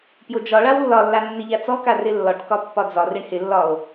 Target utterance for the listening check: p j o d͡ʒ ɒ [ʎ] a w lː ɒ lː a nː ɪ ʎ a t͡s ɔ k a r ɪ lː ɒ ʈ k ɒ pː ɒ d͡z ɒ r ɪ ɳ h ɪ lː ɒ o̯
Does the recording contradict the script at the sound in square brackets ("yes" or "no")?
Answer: yes